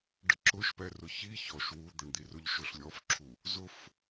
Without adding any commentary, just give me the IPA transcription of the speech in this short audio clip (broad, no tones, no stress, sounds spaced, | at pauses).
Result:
ɖ ə ǁ ʊ ʃ p ɛ r ʊ ç i ç ɔ ʃ w u d̪ ə ɳ d̪ i r ʊ ʎ ʃ ʊ ɬ lʲ ɔ f ǁʰ u | z ʊ f